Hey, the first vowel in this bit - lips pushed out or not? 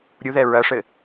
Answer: yes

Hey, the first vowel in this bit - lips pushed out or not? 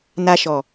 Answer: no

